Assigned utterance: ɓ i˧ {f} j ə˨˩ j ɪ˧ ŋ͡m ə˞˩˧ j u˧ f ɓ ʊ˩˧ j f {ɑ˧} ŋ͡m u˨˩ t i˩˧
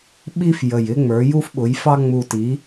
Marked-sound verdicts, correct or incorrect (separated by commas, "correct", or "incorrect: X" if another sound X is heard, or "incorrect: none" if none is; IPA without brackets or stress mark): correct, correct